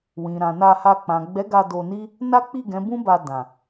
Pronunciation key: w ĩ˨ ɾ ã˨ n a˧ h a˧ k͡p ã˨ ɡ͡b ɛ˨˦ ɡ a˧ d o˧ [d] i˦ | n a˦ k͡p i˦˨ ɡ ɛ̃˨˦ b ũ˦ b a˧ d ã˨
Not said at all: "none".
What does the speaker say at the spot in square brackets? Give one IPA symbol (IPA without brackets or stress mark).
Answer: n